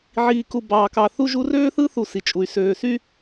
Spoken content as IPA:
ʕiː˨ku˨bɑː˨kɑ˨ θu˦ʒu˦r øː˦θɯ˦ θu˨ si˨t͡ʃʼu˨y̯ søː˨sy˦

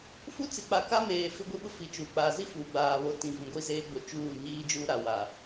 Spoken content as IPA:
fu˦t͡sɪ˨k͡pa˨ka˦ meː˨ fɪ˦ɡʷi˦ɓʊ˦ fi˨t͡ʃu˨ k͡paː˨zi˦fuː˨ɡ͡baː˨ βo˨˦tĩ˨vĩ˨ ɡʷi˦zeː˦ɡ͡bo˨ t͡ʃuː˦˨ɲiː˦d͡ʒuː˦ɾa˨ wa˨

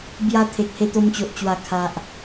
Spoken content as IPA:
bja˧ t̪ʰe˨k̚he˧ t̪o˧mt͡ɕo˨ʔt͡ɕwa˨˩ kʰa˨ʔ

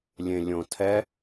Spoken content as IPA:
lʲẽlʲõtʰɛ

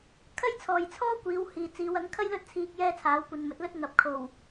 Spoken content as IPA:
kʰɐ˥jt͡sʰɔː˨jt͡sʰɔː˥kʷiː˨˧w hiː˨t͡siː˨˧w ɐ˨˥ŋkʰɐ˥jlɵ˥t̚t͡sʰiː˧k̚ jɛː˥t͡sʰaː˨˥wkʷɐ˧n mɵ˨˥t̚lɵ˥t̚ ŋɐ˨p̚ kʰo˨˩w

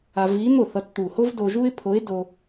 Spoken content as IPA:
a˧v i˧˥n̪o˥˩θʌ˧t t̪u˨˩ho˥v do˧ʒu˥ɪ̯ pʰo˧˥ɪ̯do˧

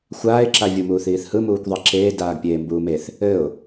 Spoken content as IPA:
xʷaːɪ̯ǁavʲumuːθ iːθhɯmuːkʷ ðˤeǁeː daːɡpʲeːmbuːmeθ | ɘʊ̯

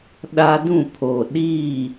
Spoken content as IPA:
ɗa˦dũ˦˨pʰo˨ ɗiː˦˨

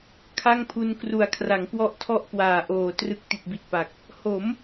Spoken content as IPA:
kʰa˥˩ŋpʰu˧nkru˨˩a̯ kʰra˩˦ŋkwɔ˥˩ʔtʰɔ˥˩ʔ kwaː˨˩ʔoː˨˩ trɯ˨˩k̚ ti˨˩t̚bi˨˩t̚pa˨˩k̚ | ho˩˦m

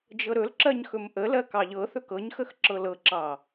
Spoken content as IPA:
d͡ʒɤɾɵlǁɜɲ xɵmʔəlɜ kɑʎɤθɵk ɤɲxəx ǁɤlɤǁɑ

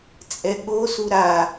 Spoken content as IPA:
t͡sʼɛɠosu ɾa

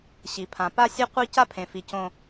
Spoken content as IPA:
ɕi˨pʰã˨ pa˦sʲe˦qʷi˦ ca˦pʰẽ˨fi˨ cõ˦

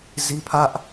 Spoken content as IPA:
zi˦ pʰä˦ʔ

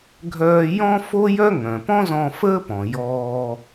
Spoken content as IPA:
ɡʱœː˧ jɔ̃˥ fo˥jœ˥ ŋœ̃˩pɔ̃˥zɔ̃˧ fəː˥pɔ̃˩ jɔː˧

